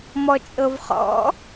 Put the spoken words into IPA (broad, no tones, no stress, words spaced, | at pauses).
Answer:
mɔt͡ʃʼɤvχɔ̰